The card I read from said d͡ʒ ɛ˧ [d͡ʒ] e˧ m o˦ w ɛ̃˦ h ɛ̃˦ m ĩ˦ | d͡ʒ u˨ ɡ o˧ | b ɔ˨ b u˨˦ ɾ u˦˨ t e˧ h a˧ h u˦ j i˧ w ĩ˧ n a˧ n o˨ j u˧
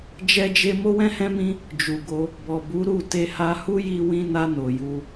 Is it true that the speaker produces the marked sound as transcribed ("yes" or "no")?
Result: yes